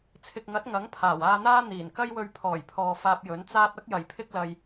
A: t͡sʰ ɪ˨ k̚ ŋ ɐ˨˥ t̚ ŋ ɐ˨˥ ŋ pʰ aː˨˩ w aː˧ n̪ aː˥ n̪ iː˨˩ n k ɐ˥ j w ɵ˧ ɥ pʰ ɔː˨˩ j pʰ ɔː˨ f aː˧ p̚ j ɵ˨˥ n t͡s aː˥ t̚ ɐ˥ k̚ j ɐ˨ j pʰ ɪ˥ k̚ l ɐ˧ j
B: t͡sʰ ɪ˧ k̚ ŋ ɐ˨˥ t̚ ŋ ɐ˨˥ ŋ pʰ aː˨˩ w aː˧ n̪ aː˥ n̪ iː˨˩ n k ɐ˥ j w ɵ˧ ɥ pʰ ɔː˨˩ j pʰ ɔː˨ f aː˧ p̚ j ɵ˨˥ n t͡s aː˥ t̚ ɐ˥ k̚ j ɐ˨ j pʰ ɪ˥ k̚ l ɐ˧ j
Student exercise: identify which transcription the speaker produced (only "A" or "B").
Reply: A